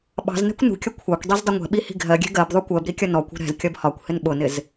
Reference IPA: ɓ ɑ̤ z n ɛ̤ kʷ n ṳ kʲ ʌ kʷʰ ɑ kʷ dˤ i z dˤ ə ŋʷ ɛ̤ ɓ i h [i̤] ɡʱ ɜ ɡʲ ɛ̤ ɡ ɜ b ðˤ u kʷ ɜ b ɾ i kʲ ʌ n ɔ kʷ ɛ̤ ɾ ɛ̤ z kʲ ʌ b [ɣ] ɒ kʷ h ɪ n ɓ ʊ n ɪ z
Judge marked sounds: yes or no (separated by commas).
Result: yes, no